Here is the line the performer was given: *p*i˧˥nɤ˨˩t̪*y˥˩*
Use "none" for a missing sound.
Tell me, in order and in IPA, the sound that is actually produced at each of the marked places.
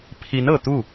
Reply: pʰ, u˥˩

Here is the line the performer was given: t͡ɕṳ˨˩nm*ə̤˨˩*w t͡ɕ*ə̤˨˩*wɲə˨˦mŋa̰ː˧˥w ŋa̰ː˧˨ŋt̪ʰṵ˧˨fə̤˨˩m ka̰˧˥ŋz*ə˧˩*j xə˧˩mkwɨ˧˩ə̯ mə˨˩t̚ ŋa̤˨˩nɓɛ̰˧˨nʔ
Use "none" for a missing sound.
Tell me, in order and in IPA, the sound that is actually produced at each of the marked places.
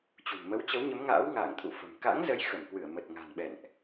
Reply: ə˨˦, ə˨˦, ə˨˦

